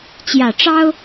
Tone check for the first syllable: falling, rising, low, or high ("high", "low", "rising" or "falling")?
low